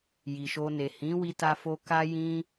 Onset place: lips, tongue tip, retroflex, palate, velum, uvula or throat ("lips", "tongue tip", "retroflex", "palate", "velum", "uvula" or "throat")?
palate